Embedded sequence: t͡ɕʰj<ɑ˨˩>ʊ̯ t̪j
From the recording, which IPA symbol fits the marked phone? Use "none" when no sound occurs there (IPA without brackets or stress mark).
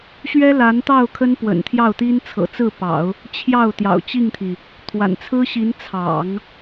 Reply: ɑ˥˩